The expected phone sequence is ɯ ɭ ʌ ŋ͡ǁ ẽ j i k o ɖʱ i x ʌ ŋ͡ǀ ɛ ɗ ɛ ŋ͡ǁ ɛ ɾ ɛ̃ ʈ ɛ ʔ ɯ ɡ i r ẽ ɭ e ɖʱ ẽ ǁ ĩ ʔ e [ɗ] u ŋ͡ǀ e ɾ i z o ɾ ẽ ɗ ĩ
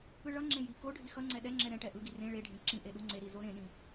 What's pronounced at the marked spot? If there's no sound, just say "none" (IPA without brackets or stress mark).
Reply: ɗ